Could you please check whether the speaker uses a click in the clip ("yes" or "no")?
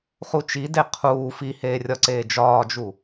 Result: yes